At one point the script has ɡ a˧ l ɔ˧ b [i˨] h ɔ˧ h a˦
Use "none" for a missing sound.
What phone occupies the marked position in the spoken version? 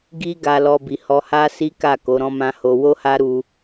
i˨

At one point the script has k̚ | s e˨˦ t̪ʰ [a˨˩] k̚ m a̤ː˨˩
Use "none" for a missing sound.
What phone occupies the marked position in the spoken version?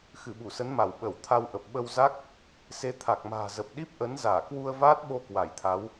a˨˩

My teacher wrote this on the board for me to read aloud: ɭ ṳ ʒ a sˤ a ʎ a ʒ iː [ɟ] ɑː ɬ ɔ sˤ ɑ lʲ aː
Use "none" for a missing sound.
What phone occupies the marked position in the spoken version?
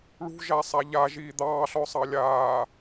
d̪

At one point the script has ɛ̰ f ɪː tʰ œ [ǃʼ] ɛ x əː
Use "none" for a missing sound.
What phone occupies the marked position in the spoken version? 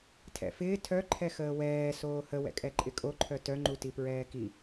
ǃʰ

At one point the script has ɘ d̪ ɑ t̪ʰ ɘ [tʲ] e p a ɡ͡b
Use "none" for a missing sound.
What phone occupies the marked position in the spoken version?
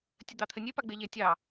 nʲ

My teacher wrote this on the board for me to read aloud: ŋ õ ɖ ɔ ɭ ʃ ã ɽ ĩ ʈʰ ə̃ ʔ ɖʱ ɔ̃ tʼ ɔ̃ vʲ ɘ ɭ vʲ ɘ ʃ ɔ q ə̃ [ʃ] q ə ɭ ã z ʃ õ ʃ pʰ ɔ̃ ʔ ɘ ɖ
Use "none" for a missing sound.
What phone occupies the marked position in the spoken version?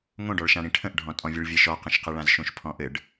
ʃ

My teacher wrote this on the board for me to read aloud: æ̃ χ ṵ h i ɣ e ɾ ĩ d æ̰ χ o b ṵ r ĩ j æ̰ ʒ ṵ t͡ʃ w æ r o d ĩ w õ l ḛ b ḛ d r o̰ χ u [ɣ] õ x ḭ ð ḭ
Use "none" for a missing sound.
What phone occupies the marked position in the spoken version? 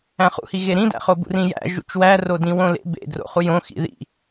j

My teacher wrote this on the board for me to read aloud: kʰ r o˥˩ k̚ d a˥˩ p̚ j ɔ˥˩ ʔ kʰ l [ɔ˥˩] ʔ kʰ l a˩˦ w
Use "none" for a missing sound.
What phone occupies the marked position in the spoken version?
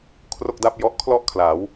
ɔ˥˩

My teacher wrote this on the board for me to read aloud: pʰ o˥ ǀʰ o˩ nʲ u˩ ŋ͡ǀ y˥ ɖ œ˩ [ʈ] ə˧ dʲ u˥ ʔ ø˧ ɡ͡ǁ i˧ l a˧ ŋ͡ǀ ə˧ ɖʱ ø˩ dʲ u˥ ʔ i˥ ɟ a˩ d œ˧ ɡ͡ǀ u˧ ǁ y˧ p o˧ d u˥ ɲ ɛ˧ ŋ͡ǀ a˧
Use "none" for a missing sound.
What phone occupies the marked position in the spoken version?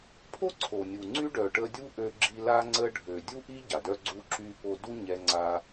ʈ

